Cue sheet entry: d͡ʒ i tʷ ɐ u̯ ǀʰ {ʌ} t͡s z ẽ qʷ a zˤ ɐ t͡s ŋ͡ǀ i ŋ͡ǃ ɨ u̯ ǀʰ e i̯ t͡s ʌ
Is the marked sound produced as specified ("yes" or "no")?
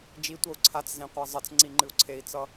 no